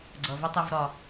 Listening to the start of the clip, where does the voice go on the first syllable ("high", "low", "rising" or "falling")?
low